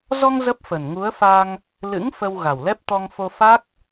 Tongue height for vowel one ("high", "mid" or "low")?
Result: mid